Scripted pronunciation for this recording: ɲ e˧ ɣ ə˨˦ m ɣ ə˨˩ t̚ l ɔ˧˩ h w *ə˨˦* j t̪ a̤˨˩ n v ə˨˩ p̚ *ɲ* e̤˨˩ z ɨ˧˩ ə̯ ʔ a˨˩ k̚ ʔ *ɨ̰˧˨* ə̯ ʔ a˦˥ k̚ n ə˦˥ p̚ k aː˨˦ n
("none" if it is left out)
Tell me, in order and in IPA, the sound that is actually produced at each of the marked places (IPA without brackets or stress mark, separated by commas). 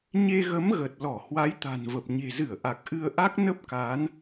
a˨˦, ɲ, ɨ˧